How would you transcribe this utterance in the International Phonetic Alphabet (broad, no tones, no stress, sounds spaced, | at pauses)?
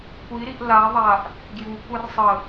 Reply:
kʷ i ɾ i ʔ l a ðˤ a ʔ | ɡ j u kʷ a r sˤ ə